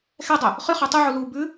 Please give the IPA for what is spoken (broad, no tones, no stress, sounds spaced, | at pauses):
x ɛ dˤ ø | χ y χ ʉ tˤ y ʕ u l uː b ʉ